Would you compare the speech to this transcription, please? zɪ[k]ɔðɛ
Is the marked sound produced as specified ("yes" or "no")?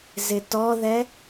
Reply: no